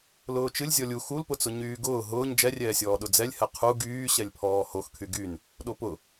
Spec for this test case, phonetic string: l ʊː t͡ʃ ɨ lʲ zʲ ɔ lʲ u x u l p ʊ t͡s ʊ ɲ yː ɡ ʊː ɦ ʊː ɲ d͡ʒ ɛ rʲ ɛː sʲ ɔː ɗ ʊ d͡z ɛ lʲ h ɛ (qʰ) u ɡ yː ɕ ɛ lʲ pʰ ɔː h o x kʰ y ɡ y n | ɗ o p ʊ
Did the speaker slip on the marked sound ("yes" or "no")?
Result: no